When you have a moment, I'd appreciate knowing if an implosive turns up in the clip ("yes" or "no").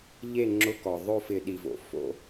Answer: yes